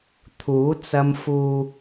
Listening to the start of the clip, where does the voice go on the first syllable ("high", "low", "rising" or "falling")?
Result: rising